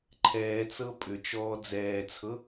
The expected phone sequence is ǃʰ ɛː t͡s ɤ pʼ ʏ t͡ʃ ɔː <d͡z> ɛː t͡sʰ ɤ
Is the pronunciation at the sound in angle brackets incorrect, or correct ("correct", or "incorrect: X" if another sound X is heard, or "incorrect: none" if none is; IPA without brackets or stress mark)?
correct